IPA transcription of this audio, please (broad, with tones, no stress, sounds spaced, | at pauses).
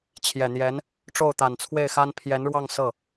t͡ɕʰ j ɛ˨˩ n̪ j ɛ˧˥ n | ʈ͡ʂ o˥˩ ʊ̯ t̪ a˨˩ n t͡sʰ w e˥˩ ɪ̯ x a˥ n pʰ j ɛ˧˥ n ɻ w ɑ˥˧ ŋ s ɤ˥˩